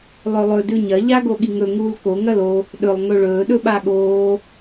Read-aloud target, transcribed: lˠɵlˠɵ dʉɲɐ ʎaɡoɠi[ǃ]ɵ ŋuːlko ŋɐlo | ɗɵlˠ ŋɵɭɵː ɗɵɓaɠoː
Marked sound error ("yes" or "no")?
yes